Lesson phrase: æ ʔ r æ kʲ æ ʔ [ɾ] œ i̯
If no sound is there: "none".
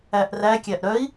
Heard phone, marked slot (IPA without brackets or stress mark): ɾ